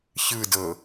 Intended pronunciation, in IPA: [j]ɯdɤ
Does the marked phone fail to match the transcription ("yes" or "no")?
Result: yes